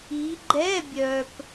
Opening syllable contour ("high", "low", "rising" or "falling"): rising